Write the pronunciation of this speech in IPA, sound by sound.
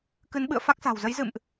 k ɨ˨˦ n ɓ ɨ̰˧˨ ə̯ f a˦˥ k̚ s a̤˨˩ w z ə˨˦ j z ɨ̰˧˨ m ʔ

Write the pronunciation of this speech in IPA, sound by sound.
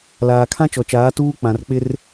l aː˨ kʰ ã˦ t͡ʃ ɔ˨ t͡ʃ aː˨˦ t uː˦ k͡p ã˨ r k͡p ɪ˦ r

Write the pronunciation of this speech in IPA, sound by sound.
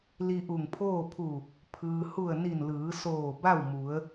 l i˧ ʔ u˧˩ ŋ pʰ oː˥˨ pʰ u˧˩ | pʰ ɯː˩ h u˧˩ ə̯ n i˧˩ n l ɯː˩˧ s oː˧˩ b a˥˨ w m u˩˧ ə̯

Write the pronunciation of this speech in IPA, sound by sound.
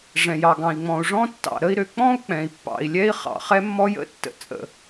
ʐ ɛ̃˩ j ɑ˩ ɡ ɑ̃˩ i̯ ŋ͡m ɔ̃˩ u̯ ʐ ɔ̃˥ tː ɑ̰˩ ɾ ə˥ i̯ ɾ ø˩ k͡p ɔ̃˥ u̯ k͡p ɛ̃˩ i̯ pː ɑ̰˩ i̯ lʲ ɛ˥ i̯ χ ɑ̰˩ χ ɛ˥ mː ɔ˥ j ə̰˥ tː ə̰˩ t͡sʼ ə̰˩

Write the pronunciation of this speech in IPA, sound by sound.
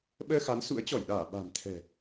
ɓ əː˧ x a˨˦ n s ṵ˧˥ ə̯ t͡ɕ ɔ˧˩ j ɗ aː˧˩ ɓ a̤˨˩ m t̪ʰ ɛ̤˨˩

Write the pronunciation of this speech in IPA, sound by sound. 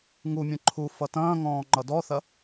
ŋ u mʲ ɐ̃ ǃʰ u f ʌ t ɐ̃ː ŋ ɔ̃ː ŋ͡ǃ ʌ d ɔ θ ɐ

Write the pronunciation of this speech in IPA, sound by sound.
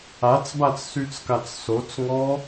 a t͡s b a t͡s s y t͡s k a t͡s s o t͡s ŋ ɔ

